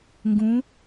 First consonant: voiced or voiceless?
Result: voiced